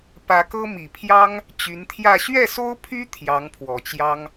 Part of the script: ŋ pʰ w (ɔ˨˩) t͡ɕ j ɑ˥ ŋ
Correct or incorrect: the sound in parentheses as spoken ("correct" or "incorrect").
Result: correct